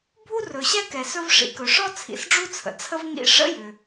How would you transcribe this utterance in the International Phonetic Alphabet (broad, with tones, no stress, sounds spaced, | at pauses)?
bʱ u˥ r ɵ˩ ɕ ɛ˥ k ɛ˩ s ɵ˥ v ʂ ḭ˩ k ɵ˩ ʂ ɔ˥ t͡sʰ ḭ˩ s ɖ͡ʐ u˥ t͡sʰ ə̰˩ t͡sʰ ə˥ v ŋ ḭ˥ ʂ ə̰˥ j ʏ˩